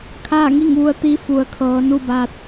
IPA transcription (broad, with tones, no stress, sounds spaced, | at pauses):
kʰ aː˥˨ ŋ i˥˨ ŋ ʋ u˧ ə̯ t̪ i˧˥ f u˩˧ ə̯ kʰ ɤː˩˧ n u˥˨ b aː˧ t̚